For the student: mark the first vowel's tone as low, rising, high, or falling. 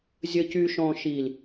low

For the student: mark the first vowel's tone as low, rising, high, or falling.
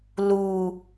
low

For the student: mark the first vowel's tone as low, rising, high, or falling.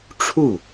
falling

